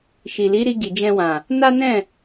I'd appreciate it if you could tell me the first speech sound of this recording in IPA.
ʃ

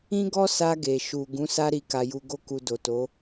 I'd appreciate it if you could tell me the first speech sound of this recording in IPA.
ĩ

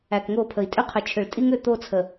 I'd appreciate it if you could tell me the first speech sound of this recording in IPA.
æ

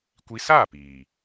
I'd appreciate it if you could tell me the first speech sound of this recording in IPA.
kʷ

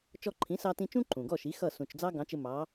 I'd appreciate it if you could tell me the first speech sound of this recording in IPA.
t͡ʃ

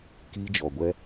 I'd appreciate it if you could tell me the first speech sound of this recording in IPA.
k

